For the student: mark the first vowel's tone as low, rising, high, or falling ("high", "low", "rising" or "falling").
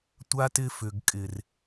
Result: high